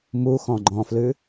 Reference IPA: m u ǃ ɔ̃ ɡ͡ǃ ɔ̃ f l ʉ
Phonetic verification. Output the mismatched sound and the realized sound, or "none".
ǃ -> x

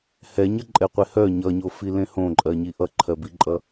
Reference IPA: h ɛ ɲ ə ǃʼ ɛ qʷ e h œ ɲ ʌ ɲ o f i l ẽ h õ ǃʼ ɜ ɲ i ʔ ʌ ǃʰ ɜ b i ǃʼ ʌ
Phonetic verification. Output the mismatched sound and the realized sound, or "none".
none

